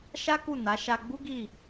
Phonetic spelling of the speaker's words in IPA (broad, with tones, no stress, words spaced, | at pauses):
ʃa˦ku˦˨na˨˦ ʃa˧ɡ͡bu˦ɡi˦˨